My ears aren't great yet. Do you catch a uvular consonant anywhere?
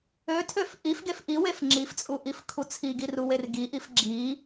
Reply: no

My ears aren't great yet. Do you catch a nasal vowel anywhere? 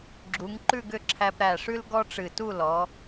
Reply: no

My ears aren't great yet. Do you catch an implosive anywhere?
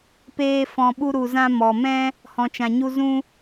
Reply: yes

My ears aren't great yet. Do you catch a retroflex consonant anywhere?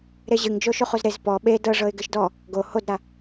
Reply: yes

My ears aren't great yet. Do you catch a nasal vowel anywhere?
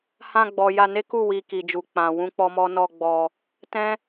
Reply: yes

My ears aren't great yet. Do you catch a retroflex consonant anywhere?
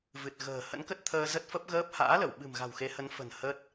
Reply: no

